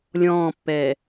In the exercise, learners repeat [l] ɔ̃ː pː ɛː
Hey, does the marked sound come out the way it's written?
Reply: no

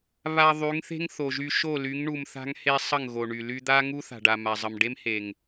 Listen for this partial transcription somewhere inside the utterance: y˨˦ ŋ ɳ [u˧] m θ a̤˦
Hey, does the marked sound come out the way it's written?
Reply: yes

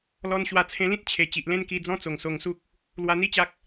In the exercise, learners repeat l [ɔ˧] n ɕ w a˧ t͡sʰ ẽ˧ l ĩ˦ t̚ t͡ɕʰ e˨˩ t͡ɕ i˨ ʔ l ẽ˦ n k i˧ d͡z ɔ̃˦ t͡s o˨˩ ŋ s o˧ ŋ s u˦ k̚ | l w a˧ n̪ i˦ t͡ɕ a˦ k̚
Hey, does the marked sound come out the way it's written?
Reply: yes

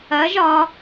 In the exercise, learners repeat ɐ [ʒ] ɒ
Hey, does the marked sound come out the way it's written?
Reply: yes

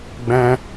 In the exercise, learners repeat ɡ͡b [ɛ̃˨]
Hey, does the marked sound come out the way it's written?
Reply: no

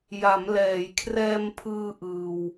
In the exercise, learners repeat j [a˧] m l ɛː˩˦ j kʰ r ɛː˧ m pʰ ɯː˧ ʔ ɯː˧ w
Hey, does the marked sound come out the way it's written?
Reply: no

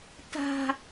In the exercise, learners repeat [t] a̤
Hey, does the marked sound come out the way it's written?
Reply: yes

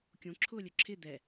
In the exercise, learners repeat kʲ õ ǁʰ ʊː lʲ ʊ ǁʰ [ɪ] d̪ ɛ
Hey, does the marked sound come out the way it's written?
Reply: yes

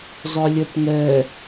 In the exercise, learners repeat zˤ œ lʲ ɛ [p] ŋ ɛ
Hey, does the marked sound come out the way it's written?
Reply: yes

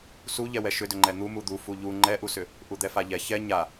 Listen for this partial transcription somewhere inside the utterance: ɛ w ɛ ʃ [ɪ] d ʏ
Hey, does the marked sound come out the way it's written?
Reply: no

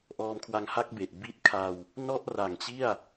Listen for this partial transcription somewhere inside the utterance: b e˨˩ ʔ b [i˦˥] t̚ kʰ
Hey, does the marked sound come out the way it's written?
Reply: yes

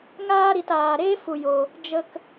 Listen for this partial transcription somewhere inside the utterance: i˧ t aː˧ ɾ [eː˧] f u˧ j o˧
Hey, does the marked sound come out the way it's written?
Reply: no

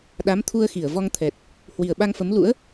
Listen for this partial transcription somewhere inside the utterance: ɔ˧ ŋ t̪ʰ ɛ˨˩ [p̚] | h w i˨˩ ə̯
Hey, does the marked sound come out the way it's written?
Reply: no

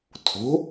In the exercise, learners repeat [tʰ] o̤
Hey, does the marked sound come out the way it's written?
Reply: yes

